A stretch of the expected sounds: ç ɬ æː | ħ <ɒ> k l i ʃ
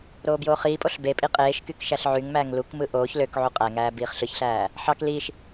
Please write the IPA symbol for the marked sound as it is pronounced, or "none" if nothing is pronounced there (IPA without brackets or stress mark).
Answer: ɑ